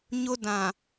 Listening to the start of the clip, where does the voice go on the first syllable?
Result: high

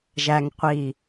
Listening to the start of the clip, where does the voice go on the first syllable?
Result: low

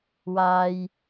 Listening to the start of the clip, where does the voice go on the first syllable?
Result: high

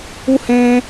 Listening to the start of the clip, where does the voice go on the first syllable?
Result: high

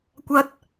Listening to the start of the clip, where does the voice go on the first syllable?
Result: high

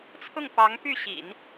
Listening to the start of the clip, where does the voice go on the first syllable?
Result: falling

